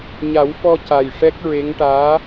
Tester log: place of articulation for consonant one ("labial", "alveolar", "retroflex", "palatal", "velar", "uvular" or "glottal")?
palatal